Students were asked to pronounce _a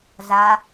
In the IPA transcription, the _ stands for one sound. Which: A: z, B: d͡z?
A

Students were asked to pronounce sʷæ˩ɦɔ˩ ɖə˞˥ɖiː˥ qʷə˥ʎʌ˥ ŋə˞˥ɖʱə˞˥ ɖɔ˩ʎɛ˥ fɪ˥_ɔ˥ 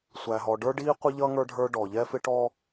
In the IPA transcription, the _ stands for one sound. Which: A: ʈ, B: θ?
A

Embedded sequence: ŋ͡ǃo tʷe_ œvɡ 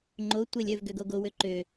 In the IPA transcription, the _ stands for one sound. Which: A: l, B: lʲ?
B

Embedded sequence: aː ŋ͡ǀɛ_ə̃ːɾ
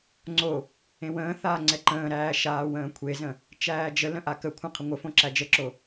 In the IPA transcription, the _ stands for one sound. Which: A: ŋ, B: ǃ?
B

